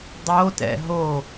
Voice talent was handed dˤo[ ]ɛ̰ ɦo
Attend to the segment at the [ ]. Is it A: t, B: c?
A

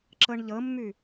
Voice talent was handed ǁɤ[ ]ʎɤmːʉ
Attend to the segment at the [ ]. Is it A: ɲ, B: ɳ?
B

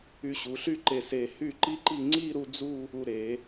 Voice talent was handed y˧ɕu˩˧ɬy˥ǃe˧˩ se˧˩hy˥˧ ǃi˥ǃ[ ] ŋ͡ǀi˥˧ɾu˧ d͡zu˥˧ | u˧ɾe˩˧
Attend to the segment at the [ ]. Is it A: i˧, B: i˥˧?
B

